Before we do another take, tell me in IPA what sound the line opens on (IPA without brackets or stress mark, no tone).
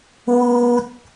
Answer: w